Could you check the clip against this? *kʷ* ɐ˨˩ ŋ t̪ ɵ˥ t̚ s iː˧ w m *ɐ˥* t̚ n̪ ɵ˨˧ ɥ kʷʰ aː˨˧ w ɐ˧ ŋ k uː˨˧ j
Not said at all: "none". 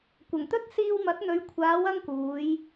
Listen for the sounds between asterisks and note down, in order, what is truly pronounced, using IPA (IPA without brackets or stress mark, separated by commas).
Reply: kʷ, ɐ˨˥